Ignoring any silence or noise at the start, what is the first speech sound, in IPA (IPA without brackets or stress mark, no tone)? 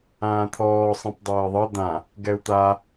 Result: ãː